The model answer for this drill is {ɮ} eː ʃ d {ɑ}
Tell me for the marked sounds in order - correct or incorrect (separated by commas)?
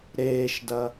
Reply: incorrect, incorrect